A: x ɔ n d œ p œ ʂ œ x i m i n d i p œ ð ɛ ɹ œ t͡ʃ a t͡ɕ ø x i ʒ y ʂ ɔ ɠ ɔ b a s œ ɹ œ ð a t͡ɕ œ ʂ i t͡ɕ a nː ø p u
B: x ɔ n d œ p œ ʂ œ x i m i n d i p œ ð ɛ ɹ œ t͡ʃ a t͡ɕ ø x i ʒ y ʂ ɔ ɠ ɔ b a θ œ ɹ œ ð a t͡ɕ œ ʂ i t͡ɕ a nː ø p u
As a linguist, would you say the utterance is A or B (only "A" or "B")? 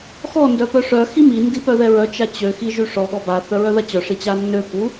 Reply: B